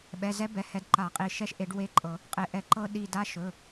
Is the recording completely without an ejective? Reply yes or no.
no